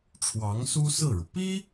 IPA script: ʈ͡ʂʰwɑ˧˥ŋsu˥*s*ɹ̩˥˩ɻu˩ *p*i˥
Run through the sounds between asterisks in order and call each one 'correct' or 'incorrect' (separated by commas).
correct, correct